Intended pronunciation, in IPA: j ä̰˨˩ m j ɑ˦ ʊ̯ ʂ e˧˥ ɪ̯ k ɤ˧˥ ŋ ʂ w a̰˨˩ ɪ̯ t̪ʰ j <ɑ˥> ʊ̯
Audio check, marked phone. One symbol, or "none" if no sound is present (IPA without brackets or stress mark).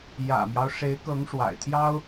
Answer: ɑ˥